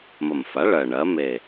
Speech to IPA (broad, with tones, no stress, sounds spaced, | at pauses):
m ə˨˩ m f a˩˥ ɭ ɜ˨˩ ɳ ɜ˩˥ m e˨˩